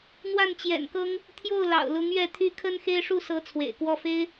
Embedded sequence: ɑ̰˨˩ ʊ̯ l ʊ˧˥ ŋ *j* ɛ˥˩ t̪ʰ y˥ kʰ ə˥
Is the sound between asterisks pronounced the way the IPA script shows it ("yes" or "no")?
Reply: no